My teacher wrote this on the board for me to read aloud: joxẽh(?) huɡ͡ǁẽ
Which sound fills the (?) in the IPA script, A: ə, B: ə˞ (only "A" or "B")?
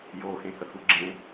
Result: A